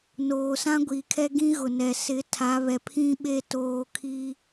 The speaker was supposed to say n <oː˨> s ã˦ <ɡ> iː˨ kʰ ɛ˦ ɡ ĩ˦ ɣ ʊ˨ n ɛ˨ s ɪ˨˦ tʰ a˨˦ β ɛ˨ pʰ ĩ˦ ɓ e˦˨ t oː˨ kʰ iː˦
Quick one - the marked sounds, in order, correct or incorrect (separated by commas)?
correct, incorrect